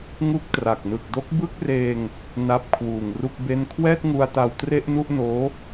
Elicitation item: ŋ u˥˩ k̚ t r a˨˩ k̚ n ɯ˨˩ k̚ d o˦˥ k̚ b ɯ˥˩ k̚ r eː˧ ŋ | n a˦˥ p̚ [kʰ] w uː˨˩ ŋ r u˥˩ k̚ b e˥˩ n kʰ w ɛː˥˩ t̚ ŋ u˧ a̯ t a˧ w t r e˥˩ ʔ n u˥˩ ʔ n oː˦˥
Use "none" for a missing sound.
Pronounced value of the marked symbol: kʰ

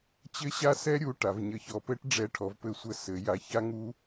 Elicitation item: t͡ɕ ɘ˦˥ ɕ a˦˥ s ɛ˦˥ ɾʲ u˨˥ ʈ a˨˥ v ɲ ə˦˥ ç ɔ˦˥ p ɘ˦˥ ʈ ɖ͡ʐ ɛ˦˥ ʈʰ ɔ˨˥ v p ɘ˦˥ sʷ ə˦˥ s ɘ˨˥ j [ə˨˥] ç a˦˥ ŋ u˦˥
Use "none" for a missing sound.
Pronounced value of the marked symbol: a˨˥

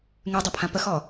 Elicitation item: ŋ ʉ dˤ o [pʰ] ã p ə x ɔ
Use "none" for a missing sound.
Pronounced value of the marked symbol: pʰ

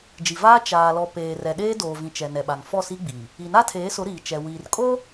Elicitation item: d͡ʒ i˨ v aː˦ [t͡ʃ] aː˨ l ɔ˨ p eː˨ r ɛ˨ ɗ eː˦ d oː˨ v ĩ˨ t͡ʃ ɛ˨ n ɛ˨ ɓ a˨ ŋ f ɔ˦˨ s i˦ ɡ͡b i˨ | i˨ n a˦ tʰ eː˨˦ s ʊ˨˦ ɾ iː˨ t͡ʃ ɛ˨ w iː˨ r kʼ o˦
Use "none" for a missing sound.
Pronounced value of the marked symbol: t͡ʃ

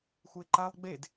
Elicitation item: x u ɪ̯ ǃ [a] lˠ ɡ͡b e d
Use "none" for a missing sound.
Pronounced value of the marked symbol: a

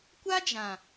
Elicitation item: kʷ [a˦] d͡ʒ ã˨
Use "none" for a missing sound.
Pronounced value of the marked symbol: a˦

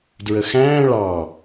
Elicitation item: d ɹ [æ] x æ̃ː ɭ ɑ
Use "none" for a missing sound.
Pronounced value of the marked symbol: ə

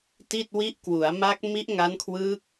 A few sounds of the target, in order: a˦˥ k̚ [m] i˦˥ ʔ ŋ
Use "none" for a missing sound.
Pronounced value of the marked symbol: m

